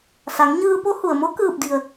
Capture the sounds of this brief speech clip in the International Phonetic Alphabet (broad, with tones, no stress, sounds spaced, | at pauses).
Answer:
s a˩˧ ŋ ɲ ɯː˧ p o˧˥ h u˩ ə̯ m o˧˥ k ɯː˧˩ p̚ d i˩ ə̯